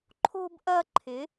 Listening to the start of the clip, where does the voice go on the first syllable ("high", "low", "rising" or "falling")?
high